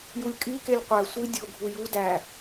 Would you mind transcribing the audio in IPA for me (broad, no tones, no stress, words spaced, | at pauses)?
julʲkʼikelʲ qʷæ sʷi dʲoɡʱu ju dæ